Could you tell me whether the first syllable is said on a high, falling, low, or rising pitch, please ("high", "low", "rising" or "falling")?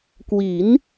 rising